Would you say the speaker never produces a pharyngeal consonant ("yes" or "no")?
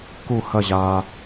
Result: yes